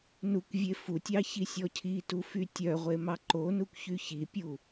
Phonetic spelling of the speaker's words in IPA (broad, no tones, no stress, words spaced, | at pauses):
nukʷvʲe futʲɑ çisʲɔcʰitu fytʲœʁʷe mɑǃonukʷ çyçipʲu